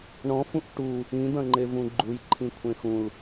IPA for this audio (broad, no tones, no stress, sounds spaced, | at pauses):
ɳ ɔ̃ f ũ ʔ ʈ u | ĩ d̪ ɐ̃ ŋ͡ǃ e v ũ ɡ͡ǃ u j ǃʰ ĩ kʷʰ ẽ x ũ l